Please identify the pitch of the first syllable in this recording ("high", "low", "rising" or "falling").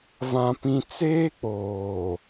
high